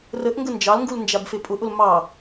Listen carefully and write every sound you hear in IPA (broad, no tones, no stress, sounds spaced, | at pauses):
r ə ʔ ŋ ɡ ə n d͡ʒ ɑ l ŋ ɡ u l n d͡ʒ a b f e pʼ ʊ ʔ ʊ l m ɑ